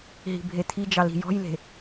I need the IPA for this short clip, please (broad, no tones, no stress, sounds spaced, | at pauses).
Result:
ɦ i̤ bʱ e t̪ʰ i d͡ʒ ɑ l i̤ j ɔ̤ j l e̤